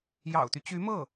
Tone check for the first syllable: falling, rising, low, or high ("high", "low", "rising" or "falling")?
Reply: low